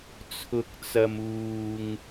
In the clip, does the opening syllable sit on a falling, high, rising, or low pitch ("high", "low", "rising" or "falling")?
low